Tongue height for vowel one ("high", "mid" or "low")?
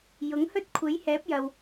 high